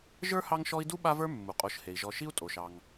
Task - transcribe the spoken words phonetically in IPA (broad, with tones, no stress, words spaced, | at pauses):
ʒə˞˥hɑ˦ŋʃɔ˦i̯ du˥ɓa˦və˞˦ mːu˩qʼo˨ʃhe˩i̯ ʒɔ˨ʃi˦u̯tʼo˩ʃɑ˩ŋ